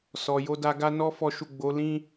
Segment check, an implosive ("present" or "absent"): absent